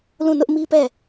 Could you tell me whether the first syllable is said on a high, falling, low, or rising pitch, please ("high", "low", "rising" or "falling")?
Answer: falling